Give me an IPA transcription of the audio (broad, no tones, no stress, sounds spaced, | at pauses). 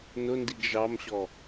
n ʊ n d i ɡ ʒ ɑ m ɕ ɔ